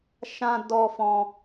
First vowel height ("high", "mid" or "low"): low